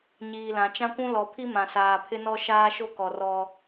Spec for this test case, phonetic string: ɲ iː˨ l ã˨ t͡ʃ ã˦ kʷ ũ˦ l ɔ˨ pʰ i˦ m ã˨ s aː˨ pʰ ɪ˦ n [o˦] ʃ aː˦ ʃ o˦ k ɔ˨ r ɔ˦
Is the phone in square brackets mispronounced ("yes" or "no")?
yes